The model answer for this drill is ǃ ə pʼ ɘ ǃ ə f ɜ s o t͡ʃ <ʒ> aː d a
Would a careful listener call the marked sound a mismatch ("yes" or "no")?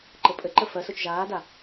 no